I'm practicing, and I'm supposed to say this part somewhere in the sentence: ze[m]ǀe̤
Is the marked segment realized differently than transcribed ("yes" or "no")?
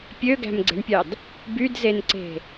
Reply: yes